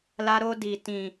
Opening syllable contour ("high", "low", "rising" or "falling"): high